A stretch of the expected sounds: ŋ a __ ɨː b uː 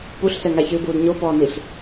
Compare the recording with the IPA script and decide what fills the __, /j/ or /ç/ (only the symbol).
ç